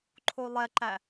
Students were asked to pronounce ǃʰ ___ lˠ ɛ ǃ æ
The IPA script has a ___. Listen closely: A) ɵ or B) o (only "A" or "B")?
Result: B